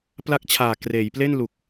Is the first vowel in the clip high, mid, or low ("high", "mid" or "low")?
low